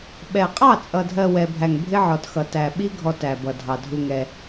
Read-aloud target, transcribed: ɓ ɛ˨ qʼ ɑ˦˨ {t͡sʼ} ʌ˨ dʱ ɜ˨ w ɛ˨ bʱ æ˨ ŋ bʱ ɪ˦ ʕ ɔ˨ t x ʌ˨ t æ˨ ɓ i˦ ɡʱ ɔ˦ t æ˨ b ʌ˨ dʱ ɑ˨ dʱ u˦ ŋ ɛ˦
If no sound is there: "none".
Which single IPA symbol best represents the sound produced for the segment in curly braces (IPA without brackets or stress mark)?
t͡sʼ